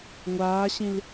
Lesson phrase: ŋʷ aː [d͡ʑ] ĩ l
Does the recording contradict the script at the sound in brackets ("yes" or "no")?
yes